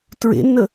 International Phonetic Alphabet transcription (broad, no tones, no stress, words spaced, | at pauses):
tɹḛnːə